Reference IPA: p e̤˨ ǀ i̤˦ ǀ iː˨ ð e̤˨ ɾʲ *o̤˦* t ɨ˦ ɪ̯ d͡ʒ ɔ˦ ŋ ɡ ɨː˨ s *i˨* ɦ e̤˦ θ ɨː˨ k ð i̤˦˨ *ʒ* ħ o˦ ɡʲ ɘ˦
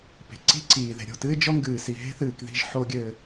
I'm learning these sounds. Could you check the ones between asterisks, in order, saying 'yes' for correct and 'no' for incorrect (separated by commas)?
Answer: no, yes, yes